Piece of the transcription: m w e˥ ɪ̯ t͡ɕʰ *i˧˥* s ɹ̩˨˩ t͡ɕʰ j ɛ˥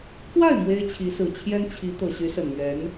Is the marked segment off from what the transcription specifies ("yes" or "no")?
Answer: no